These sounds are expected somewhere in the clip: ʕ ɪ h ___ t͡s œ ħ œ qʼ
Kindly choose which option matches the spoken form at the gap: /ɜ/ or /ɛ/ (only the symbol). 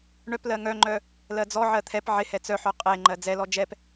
ɛ